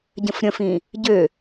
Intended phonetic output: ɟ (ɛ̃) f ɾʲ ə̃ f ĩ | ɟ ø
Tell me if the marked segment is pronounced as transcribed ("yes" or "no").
no